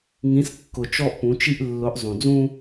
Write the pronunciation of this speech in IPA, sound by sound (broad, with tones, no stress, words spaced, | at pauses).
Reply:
ŋĩ˨˦skːʊ˨ t͡ʃɔ˦ʔpũ˨˦t͡ʃi˦ʔ lːʊ˨˦ʔzˤũ˨d͡zũ˦